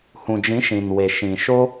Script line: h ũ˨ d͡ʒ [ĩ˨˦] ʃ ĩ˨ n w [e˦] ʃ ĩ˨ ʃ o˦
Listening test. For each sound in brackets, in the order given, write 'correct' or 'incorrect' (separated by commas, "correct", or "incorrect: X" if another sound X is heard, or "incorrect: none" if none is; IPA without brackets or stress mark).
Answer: correct, incorrect: e˨